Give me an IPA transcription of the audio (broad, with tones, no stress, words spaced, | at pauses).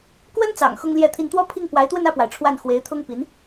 kwə˥nt͡sɑ̰˨˩ŋ xʊ˥ŋljɛ˥˧t̪ʰi˥˧n t̪wɔ˥˧ pʰi˥˩ŋ pwa˧˥ɪ̯t̪wə˥˧nä˥˩pwa˩ɪ̯ ʈ͡ʂʰwa˥˩n xwe˧˥ɪ̯t̪ʰʊ˥ŋpi˧˥n